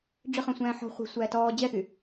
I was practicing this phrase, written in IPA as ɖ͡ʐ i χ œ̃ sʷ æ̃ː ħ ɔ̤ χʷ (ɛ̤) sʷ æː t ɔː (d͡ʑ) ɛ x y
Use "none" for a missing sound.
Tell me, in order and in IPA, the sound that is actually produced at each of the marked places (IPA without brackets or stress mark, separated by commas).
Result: ɛ̤, d͡ʑ